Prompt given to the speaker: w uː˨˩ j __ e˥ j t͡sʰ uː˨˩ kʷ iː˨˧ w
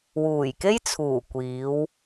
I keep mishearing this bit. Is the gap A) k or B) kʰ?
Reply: A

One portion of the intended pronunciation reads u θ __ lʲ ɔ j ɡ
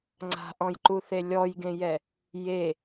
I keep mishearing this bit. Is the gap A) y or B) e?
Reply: B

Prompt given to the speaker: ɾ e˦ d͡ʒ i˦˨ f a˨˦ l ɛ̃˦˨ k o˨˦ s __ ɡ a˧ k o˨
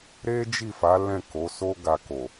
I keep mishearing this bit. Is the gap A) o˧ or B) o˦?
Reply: B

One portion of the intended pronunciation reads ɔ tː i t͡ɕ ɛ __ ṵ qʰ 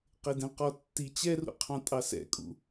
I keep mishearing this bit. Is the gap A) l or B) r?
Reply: B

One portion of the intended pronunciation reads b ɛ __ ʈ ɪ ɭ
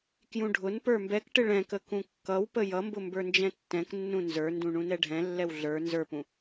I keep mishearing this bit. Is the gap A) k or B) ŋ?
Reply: A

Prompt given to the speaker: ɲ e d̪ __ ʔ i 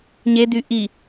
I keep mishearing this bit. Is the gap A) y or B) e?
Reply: A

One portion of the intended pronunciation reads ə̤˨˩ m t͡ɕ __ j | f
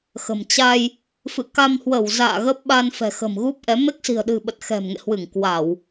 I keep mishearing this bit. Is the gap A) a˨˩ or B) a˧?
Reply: B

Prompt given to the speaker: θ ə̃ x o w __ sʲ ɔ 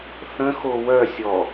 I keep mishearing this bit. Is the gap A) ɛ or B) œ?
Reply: B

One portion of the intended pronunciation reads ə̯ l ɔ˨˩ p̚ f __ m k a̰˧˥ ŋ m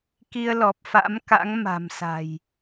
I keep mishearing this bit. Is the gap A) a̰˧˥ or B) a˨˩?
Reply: A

